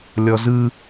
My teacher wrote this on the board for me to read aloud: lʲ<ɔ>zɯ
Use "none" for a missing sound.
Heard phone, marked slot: ɔ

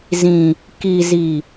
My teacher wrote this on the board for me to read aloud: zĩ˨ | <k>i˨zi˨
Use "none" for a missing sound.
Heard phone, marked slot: k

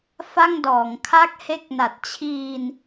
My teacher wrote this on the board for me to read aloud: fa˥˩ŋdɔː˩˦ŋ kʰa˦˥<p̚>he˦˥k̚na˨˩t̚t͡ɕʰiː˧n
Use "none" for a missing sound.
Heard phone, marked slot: k̚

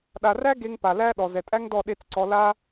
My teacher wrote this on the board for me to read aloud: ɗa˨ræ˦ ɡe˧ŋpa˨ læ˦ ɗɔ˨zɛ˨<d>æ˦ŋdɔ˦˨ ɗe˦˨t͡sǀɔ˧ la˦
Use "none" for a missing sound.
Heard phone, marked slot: tʼ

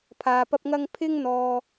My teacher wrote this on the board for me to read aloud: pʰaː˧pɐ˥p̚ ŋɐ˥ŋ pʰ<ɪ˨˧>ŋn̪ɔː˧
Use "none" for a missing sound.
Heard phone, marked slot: ɪ˥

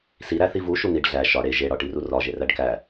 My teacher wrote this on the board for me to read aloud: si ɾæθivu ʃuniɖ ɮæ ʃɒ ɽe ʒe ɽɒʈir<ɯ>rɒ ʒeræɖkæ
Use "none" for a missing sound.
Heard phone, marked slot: u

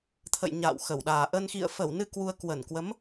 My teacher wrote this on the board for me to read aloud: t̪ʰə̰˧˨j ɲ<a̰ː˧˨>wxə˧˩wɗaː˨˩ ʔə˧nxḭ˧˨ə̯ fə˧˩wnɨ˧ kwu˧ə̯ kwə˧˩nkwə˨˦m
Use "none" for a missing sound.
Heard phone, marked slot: a̰ː˧˨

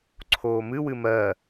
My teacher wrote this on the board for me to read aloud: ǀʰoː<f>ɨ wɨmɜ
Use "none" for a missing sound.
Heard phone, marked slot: m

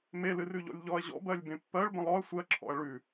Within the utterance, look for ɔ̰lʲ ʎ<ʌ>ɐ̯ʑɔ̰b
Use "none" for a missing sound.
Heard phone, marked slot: ɔ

